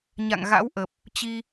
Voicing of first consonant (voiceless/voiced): voiced